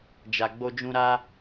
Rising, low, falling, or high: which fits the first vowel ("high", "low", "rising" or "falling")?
low